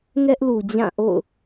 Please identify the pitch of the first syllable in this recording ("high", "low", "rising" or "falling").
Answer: high